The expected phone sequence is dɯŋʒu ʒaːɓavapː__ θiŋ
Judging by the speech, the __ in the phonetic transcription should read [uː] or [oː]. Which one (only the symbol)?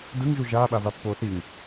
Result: oː